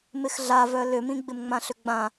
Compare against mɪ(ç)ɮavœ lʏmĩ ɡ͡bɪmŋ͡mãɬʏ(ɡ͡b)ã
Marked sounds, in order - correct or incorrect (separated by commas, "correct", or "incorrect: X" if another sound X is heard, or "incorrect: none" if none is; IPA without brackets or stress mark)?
incorrect: x, correct